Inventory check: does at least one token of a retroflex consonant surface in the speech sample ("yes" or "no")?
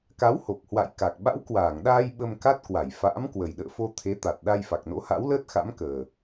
no